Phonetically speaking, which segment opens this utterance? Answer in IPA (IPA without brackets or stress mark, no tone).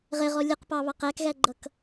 ʁ